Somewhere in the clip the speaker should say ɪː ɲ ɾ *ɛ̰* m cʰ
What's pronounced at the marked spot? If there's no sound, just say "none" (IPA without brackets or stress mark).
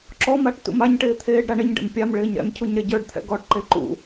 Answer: ɛ̰